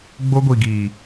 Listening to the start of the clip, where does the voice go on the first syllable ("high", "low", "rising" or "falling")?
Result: high